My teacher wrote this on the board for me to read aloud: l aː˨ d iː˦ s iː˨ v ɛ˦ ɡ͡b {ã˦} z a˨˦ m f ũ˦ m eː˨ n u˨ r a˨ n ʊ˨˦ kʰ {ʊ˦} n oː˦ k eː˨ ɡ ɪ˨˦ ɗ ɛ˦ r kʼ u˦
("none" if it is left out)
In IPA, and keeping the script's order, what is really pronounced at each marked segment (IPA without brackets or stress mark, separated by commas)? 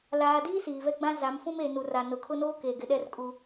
ã˦, ʊ˦